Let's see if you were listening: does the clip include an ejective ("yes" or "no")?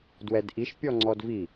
no